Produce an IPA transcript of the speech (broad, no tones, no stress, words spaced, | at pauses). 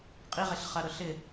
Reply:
qʼiʁeɬχaɾʊ ɬɪ